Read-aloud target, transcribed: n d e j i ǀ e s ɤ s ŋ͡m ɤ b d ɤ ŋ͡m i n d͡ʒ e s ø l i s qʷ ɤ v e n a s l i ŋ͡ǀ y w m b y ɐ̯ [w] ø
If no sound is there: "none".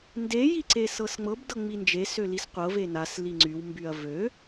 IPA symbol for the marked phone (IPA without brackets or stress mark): v